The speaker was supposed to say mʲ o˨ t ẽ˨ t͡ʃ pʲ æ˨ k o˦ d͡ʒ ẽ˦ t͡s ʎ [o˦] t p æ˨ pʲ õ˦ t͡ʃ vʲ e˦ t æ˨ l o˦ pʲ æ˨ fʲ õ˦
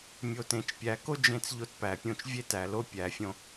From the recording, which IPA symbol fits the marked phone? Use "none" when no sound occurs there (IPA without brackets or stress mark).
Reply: o˦